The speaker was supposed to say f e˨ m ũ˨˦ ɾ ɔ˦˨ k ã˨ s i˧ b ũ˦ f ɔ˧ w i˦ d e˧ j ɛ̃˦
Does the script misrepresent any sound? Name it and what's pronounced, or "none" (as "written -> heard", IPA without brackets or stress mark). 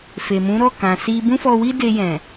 ɛ̃˦ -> ɛ̃˨